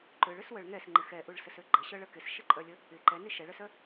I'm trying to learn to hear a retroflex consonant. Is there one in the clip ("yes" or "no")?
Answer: yes